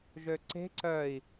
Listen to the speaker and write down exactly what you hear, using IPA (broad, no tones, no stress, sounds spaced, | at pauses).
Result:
ʒ ø ǀ e̤ ǀ œ i̯